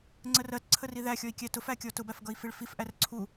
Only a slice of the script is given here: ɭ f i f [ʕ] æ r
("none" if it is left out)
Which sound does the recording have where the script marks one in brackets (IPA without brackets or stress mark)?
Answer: ʔ